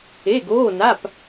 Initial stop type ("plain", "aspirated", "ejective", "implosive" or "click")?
plain